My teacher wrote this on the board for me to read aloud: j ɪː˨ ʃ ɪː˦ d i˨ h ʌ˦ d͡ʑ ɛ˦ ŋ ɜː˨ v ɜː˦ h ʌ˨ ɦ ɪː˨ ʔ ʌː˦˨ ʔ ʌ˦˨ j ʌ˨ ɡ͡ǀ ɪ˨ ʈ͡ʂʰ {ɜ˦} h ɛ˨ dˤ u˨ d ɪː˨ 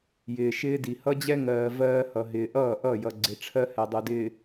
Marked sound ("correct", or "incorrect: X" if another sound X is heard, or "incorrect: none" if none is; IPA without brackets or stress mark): correct